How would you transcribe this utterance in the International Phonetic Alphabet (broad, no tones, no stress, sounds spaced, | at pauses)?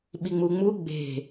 ɓ i ŋ͡m u ŋ͡m u ɡ͡b e̤